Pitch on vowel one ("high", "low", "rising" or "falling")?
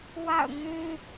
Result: falling